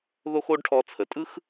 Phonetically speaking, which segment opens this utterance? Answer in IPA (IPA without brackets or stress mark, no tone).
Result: ð